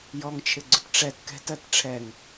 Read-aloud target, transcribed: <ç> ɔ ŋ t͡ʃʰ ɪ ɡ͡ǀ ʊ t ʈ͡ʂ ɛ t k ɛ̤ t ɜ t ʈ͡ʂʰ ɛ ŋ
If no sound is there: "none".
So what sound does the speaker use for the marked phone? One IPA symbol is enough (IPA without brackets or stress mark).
j